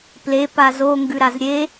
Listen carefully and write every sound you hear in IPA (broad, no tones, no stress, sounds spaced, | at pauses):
p l e p a z o ŋ ɡ ʉ ɾ a z ɾʲ e